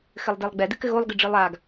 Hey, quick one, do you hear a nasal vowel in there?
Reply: no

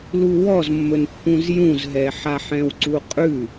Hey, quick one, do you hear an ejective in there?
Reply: yes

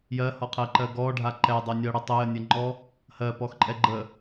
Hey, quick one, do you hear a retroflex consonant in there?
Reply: yes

